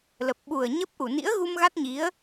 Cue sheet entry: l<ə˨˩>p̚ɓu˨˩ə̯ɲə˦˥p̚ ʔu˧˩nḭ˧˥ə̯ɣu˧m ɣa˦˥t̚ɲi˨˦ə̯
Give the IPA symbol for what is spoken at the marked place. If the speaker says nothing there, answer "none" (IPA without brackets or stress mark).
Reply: ə˨˩